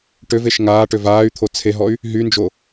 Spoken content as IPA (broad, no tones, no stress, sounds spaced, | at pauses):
ʈ ø v e ʃ ŋ aː ʈ ø v aː y̯ t̪ʰ o t͡sʰ e ɦ ɔ y̯ | ɦ y n d͡ʒ o